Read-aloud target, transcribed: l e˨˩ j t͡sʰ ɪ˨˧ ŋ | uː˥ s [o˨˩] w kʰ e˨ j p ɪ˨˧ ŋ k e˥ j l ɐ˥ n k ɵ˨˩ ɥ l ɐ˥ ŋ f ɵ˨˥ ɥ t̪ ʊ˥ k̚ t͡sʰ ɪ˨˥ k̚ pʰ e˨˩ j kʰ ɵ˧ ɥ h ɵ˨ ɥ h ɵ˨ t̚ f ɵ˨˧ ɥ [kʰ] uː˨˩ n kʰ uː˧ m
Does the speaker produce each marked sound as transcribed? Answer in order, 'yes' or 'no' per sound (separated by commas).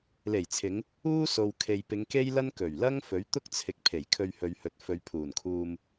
no, no